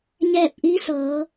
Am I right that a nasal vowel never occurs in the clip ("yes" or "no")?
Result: yes